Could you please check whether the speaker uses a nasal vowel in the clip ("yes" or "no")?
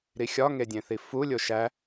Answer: yes